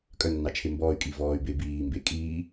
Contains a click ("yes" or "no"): no